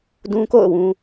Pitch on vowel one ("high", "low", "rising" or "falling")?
high